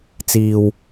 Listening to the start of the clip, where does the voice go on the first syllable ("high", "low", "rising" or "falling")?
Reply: low